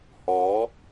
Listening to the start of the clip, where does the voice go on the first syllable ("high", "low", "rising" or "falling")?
rising